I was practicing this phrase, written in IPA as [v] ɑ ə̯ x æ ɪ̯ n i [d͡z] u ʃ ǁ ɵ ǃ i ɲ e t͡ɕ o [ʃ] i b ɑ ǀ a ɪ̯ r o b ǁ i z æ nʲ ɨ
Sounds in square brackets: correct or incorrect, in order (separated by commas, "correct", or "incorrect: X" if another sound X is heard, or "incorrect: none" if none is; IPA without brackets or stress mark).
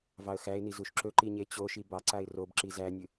correct, incorrect: z, correct